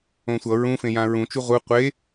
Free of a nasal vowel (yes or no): no